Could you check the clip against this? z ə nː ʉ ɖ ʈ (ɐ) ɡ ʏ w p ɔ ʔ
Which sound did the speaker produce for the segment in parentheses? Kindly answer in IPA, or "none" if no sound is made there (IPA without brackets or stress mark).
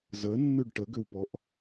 ə